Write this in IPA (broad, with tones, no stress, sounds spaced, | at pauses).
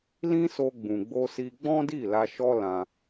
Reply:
l ĩ˦ s o˧ ɡ͡b ũ˨ ɡ͡b o˧ s i˧ ɡ͡b ɔ̃˦ d i˦˨ l a˧ ʃ ɔ˦ l ã˧